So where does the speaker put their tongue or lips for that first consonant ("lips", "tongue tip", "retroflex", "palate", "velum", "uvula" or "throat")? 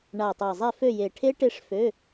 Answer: retroflex